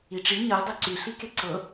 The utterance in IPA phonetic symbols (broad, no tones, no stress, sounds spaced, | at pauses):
i ʈ͡ʂ i ɲ ɤ dˤ i ǀ y ɬ i k e ǀ ɤ